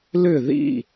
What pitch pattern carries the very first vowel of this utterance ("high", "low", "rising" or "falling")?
falling